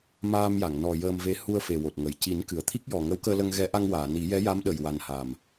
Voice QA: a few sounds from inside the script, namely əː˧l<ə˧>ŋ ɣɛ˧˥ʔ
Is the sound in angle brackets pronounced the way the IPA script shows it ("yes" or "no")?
yes